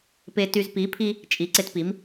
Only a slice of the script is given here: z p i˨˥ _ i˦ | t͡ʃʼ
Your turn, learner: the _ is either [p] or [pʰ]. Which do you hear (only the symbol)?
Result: pʰ